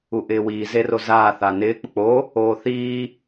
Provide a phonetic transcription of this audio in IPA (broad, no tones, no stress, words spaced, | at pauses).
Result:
uʔɪːwiː zerozaː θanɪː k͡pʊk͡po | oːθiː